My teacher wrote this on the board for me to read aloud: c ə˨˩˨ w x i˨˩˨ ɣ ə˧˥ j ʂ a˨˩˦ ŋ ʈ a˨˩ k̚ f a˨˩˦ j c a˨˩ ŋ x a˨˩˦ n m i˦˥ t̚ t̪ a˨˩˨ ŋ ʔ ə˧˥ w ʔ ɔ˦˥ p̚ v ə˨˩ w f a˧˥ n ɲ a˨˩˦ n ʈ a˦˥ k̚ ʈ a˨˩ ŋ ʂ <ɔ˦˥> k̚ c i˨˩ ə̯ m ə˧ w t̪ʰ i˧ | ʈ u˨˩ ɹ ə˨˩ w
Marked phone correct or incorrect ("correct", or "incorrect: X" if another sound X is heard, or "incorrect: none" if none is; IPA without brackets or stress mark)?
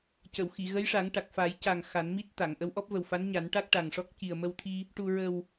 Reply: correct